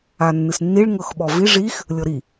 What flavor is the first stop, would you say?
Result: implosive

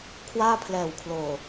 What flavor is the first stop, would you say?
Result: aspirated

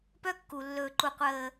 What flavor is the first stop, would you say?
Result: plain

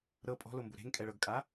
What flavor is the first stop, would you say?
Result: ejective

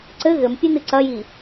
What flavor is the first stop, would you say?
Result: click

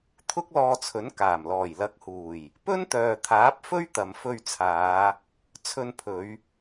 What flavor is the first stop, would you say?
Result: aspirated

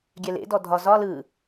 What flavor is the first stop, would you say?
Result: plain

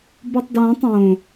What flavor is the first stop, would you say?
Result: plain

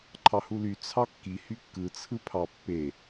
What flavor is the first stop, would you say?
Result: click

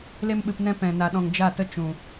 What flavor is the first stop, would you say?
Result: implosive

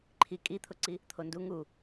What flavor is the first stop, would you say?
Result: click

